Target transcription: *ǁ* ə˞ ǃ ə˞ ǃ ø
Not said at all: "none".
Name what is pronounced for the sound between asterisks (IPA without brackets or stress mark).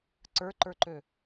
ǀ